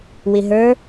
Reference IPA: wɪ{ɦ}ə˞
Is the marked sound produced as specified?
yes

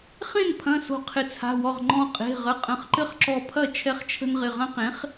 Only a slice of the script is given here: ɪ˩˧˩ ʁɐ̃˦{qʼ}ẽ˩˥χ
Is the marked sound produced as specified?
no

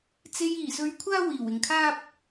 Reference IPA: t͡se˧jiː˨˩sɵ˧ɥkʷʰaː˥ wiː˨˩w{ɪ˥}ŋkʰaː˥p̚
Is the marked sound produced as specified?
no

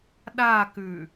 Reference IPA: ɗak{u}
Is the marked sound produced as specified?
no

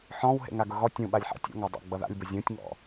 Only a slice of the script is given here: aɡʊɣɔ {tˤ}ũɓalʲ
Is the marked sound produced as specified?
no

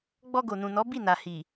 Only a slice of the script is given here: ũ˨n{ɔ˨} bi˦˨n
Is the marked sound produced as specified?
no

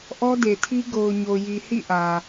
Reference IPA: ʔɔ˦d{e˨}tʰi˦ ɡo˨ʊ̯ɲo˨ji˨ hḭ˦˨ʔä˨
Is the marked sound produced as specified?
yes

